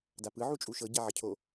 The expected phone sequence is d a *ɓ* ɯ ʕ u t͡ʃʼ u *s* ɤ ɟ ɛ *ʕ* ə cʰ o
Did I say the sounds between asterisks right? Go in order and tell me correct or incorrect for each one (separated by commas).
incorrect, incorrect, correct